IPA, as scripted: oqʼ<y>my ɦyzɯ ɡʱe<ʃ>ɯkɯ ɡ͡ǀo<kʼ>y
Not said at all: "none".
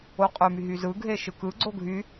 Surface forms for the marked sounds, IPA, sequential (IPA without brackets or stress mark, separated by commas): ø, ʃ, ɡʱ